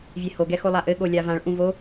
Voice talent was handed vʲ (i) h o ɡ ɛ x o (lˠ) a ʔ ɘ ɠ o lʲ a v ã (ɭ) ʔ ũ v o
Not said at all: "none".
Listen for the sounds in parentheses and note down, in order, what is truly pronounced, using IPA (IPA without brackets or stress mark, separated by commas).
e, lˠ, ɭ